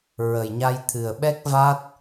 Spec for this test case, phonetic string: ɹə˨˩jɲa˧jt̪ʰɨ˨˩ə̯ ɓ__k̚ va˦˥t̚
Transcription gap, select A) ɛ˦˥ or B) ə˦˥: A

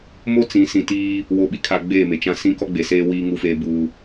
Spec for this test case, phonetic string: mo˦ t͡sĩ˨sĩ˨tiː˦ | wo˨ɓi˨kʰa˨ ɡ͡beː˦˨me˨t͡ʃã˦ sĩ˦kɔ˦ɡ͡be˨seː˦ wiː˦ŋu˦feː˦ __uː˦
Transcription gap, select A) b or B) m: A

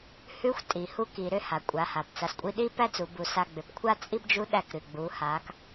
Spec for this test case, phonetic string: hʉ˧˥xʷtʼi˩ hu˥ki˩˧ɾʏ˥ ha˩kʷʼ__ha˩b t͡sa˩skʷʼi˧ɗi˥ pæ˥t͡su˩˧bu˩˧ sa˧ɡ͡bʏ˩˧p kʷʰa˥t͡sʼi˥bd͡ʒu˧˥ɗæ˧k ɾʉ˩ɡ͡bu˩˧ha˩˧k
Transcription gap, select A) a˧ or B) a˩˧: B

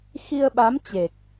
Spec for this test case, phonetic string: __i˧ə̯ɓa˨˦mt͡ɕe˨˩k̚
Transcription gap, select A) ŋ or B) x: B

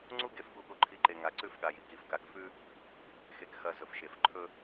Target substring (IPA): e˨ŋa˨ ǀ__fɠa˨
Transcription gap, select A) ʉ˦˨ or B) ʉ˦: A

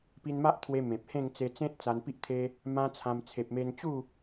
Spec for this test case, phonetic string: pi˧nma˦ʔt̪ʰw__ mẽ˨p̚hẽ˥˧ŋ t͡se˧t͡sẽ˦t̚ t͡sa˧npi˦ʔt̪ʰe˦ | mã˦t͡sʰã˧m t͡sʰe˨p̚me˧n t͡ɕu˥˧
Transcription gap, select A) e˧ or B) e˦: A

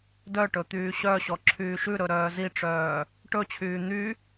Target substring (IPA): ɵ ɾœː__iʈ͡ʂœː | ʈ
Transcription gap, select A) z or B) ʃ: A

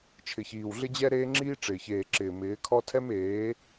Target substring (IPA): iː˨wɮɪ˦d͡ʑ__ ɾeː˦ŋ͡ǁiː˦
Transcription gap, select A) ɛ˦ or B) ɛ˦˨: A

